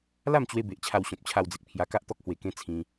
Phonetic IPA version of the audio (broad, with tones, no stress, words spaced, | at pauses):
la˥˧mt͡ɕwe˧be˨ʔ t͡ɕʰa˧wɕɔ̃˨p̚t͡ɕʰa˧wd͡ze˨k̚ pʰja˧ka˦ʔt̪ɔ˦k̚hwe˧ kẽ˦t͡sʰĩ˧